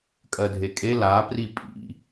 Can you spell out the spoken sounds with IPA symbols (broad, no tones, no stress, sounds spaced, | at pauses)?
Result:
kʼ ɜ dʱ e kʼ e l a p r i pʼ ḭ